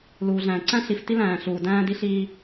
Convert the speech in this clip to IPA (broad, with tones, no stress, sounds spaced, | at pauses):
l uː˨ ɮ æ̃ː˨ ǀ æ̃˦ ɬ i˨ f t i˦ l æ̃ː˨ ɬ uː˨ d æ̃ː˦ d i˦ ɬ iː˦